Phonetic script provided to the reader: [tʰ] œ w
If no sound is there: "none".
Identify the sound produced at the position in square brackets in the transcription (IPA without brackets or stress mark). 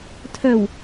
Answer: tʰ